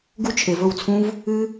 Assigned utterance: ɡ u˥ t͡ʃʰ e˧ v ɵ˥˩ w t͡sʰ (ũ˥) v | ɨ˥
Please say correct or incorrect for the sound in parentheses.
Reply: correct